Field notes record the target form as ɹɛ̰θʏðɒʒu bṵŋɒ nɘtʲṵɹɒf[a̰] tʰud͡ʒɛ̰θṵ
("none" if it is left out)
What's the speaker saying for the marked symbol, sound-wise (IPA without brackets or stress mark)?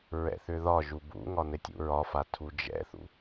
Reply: a